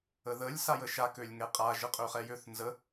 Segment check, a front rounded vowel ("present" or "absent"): present